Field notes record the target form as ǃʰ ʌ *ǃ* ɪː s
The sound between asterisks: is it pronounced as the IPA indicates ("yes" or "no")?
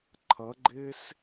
no